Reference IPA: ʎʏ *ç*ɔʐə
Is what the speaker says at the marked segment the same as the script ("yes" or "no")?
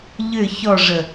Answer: yes